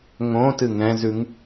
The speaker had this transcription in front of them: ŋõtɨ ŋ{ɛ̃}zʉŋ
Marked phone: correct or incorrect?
correct